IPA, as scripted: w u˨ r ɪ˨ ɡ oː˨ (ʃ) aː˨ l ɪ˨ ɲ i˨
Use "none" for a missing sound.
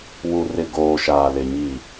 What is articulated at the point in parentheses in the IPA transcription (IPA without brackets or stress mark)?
ʃ